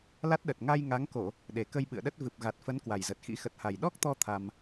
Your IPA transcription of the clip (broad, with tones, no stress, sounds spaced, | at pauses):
l a˦˥ t̚ ɗ ə˨˩ t̚ ŋ a˧ j ŋ a˨˦ ŋ k o˧˩˨ | ɗ e˨˩ k ə˧ j ɓ ɨ̰˧˨ ə̯ ɗ ə˦˥ t̚ v ɨ˨˩ p̚ ɣ a˨˩ t̚ f ə˨˦ n k w a˨˩ j z ə˨˩ t̚ x ḭ˧˥ x ə˨˩ t̚ h a˨˩ j ɗ ɔ˦˥ k̚ t̪ ɔ˧ t̪ʰ a˧ m